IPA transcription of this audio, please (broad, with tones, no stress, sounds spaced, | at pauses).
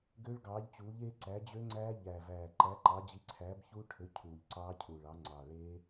ɡ ø˦˥ ɭ ɡ ɑː˨˥ ʎ t͡ɕ uː˨˥ ʎ eː˦˥ ǀ æ˨˥ d͡ʑ ø˦˥ ŋ͡ǀ æː˦˥ ʎ æ˨˩ v æː˨˩ ǃ æ˨˥ ǃ ɑ˨˥ d͡ʑ i˨˥ ǀʰ æː˨˥ b ç uː˦˥ ʈʰ ø˨˥ cʰ uː˨˩ ʎ ǀ ɑː˦˥ cʰ uː˨˩ ɭ ɑ˨˥ ŋ͡ǀ ɑ˨˩ ɭ e˦˥